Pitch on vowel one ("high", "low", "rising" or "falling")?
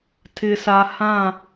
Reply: low